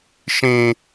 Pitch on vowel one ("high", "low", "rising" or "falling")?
low